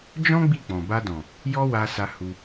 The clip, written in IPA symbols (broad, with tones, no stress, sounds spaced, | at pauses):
d͡ʒ ɔ̃˦ ɡ͡b i˦˨ k͡p ɔ̃˨ b a˧ d ɔ̃˨ | j ɔ˦ w a˧ s a˧ h u˧